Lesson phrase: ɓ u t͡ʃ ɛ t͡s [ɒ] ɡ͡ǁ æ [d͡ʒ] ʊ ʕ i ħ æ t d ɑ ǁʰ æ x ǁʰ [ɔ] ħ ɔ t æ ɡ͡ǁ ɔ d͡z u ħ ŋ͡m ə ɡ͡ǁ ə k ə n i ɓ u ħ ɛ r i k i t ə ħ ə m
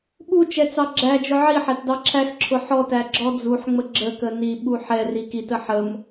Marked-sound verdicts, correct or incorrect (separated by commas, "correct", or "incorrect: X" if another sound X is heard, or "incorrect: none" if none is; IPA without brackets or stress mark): incorrect: ɑ, correct, incorrect: ʊ